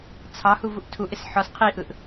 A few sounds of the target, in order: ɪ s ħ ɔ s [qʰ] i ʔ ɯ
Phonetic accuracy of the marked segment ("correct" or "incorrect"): correct